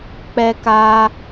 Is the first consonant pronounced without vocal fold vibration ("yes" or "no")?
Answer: yes